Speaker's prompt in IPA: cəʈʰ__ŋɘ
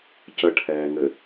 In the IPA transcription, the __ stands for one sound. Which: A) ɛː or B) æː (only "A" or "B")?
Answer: A